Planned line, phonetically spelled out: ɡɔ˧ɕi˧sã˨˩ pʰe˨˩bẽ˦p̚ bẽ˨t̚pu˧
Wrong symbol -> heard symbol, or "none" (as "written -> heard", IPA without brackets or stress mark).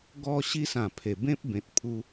p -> pʰ